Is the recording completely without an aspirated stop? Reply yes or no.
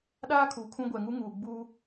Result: no